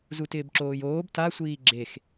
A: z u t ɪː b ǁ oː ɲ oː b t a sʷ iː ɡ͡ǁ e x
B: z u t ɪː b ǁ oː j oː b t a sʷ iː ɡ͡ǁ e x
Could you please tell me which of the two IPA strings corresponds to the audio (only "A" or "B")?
B